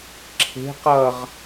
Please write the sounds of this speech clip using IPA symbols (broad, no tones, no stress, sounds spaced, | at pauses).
ǁʰ e̤ q ʌ ʁ